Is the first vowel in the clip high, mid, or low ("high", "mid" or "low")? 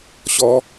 mid